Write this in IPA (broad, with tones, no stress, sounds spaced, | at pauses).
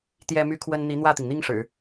t̪ j ɛ˥ m y˥ kʰ w ə˥ n n̪ i˧˥ n̪ w ä˥˩ t̪ i˩ ŋ n̪ i˥ ŋ ʂ ɻ̩˨˩˦